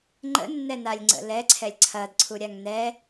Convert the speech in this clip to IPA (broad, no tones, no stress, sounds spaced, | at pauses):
ŋ͡ǃ ə̰ nː ɛ n a lʲ ŋ͡ǀ ə̰ l ɛ ǀʰ ɛ lʲ ǀʰ ɐ d ǀʰ u ɾʲ a ŋ n ɛ